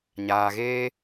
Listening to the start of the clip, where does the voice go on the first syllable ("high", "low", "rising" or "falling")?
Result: low